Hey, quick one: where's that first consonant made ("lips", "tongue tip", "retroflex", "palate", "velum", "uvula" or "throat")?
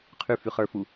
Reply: uvula